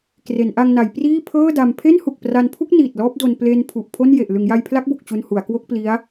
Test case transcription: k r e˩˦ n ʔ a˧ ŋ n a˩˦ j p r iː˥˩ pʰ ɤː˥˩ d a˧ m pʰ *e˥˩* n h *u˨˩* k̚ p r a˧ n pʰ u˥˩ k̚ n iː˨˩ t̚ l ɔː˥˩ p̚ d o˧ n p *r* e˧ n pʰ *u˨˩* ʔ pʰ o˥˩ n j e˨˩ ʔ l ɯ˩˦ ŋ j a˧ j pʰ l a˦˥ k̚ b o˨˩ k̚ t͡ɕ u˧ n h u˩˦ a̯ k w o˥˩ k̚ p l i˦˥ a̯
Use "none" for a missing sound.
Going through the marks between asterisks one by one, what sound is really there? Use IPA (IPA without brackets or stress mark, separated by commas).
e˥˩, u˨˩, l, u˨˩